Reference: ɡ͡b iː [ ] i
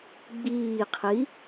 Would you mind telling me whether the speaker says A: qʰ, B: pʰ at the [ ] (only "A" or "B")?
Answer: A